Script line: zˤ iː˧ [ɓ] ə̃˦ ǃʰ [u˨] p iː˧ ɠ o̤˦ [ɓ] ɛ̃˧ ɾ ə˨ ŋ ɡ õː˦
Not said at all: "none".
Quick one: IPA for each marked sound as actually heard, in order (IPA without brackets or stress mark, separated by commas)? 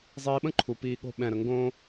ɓ, u˨, ɓ